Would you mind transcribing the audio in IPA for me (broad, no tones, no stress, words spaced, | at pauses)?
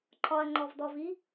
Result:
ǃʰɒɐ̯ŋ͡ǃɔvdɔvi